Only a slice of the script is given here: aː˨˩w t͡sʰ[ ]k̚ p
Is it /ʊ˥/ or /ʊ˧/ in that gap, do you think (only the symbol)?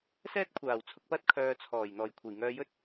ʊ˧